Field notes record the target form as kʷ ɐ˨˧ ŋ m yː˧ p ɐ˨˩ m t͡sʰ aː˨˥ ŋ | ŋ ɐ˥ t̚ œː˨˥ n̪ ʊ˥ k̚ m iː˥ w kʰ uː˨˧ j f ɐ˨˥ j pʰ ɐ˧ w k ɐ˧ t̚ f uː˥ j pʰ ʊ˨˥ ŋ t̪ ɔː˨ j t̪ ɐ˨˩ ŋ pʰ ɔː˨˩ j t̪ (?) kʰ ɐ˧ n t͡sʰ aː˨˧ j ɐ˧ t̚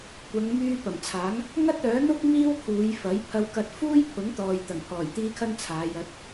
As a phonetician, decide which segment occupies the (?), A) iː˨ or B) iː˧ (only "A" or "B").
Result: B